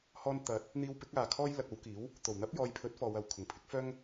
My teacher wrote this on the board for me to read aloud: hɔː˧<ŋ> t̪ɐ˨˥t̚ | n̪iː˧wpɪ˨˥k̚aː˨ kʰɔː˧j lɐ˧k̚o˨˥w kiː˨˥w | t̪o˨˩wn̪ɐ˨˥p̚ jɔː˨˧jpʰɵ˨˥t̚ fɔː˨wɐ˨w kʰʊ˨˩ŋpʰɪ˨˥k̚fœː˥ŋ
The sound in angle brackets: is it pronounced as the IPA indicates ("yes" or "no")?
no